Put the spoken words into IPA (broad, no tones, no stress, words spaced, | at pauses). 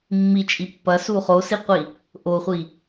mːit͡ʃʼi pːɐsu χosiqʷi | ʔoχʷi